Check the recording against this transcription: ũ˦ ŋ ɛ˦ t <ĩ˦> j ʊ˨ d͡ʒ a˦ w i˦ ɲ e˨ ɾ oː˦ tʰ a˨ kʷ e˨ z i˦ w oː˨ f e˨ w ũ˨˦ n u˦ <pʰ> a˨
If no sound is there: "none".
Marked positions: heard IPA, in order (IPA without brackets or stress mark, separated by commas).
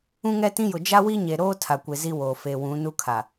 ĩ˦, kʰ